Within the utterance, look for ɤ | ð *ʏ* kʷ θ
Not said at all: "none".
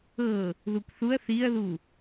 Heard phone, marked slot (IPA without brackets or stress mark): u